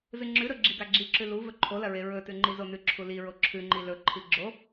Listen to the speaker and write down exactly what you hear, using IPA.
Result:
z ɨ ŋ͡ǁ ʉ ɾ ɵ ɡ͡ǁ i ɡ a ɡ͡ǁ i ǁ ʉ l u v ɵ ǃʰ o l ɐ ɹ e ɹ ɵ t ʉ ŋ͡ǃ i z o n ʉ ǁʰ u l i ɹ o ǁʰ ʉ ŋ͡ǃ i l ɵ ǃʰ i ɡ͡ǁ o

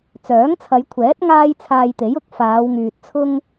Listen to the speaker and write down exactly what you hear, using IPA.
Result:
t͡s œː˨˥ ŋ t͡sʰ ɐ˨˧ j kʷʰ ɛː˨˥ t̚ ŋ aː˥ j t͡sʰ aː˧ j t̪ e˨˥ j ʊ˨˥ k̚ f aː˨˧ w ŋ yː˨ t̚ t͡sʰ ʊ˥ ŋ

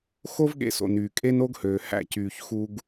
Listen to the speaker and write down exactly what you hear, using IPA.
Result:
x o˦ v ɠ ḛ˧ s o̰˨ n yː˨ kʼ e˦ n o˦ ɡ h øː˨ h æ̰˦˨ c yː˧ ç x u˦ ɡ

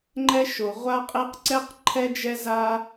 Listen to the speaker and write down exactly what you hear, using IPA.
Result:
ŋ͡ǃ ɛ˧ ʃ o˩ ʁʷ a˧ qʼ e˧ q ǀ ɛ˧ q ǃʰ ɛ˧ d͡ʒ ɛ˧ z a˧

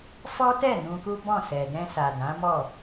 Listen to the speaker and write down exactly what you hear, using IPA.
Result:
f ɔ˦ t ɛ˦˨ n ũ˧ k u˦ b ɔ̃˦˨ s ɛ˨ d ɛ̃˧ s a˨ d ã˨˦ m ɔ˦˨

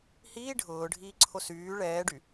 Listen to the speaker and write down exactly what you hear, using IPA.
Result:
h iː ɖʱ ʊː ɖʱ iː ǀʰ o s yː ɭ ɛː ɖ y

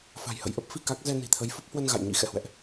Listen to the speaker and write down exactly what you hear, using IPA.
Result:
f a̤˨˩ j h ə̰˧˨ j ʔ ə˦˥ p̚ f i˧ k a˦˥ k̚ z ɛ˧ n i̤˨˩ t̪ʰ ə˨˦ j f ə˦˥ p̚ h w ə˧ n ɣ a̰˧˨ j ɲ ḭ˧˥ x ɛ̰˧˨ h w ɛ̰˧˨ ʔ

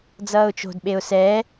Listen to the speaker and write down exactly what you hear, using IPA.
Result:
d͡z ʌː ʊ̯ t͡ʃ o̤ d ɓ e ʊ̯ s ɛ

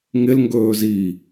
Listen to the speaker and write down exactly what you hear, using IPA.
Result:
ŋ ɪ l ŋ ɡ ɵː z iː

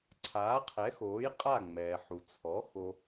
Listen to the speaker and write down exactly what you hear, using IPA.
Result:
ǀʰ aː˩˥ qʰ ɛ˩˥ x oː˩˥ j qʼ a˥˩ ŋ͡m ɛː˩ ħ u˩ t͡sʰ ɔ˩˥ x o˧

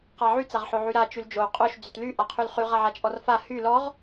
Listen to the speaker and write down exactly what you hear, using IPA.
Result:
q a ʕ y t͡s a ʁ ħ o ʕ y ɾ a t͡ʃ y l d͡ʒ o qʼ o ʃ d͡z y t l y ʔ a qʰ y l χ y ʁ a ʕ a t͡ʃʼ ɔ r f a h y l ɔ ʁ

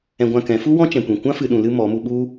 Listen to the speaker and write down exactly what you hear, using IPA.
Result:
ɛ̃˧ ɡʷ ã˧ k ɛ̃˨˦ f u˦ w ɔ̃˦ t͡ʃ ɛ̃˨ kʷ ĩ˨ kʷ ã˦ f ɨ˨ ɗ ũ˨ l ɨ˧ m ɔ˨˦ m u˧ ɓ u˦

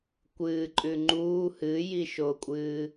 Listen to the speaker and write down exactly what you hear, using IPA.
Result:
kʷ ɨː ǃʼ ʉ ŋ͡ǃ uː h ɨː j i ʃ oː kʷʼ ɨː

